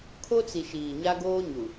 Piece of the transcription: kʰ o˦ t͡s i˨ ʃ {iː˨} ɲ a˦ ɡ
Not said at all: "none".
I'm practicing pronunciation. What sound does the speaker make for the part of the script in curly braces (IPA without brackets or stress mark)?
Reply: iː˨